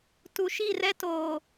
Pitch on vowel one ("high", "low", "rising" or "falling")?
low